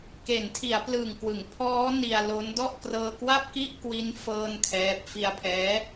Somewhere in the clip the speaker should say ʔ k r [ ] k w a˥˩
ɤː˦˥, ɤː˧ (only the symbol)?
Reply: ɤː˧